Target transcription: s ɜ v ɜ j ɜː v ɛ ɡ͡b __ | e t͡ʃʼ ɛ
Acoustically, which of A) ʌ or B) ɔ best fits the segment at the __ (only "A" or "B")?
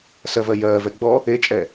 B